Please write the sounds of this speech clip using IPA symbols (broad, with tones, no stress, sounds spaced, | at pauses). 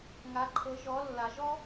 ŋ a˩˧ ǃʰ ɤ˩˧ ʒ ɔ˩˧ lː a˩˧ ʒ ɔ˥